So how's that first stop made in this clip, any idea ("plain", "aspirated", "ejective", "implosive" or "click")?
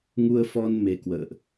plain